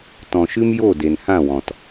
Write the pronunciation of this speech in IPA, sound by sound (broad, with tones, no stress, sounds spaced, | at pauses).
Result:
t ɔ̃˨ ʃ ɨ˦ m j o˦˨ d e˨ n h ã˦˨ w ɔ̃˨ t